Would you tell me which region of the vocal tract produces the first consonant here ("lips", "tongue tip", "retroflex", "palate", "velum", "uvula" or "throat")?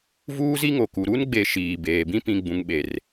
lips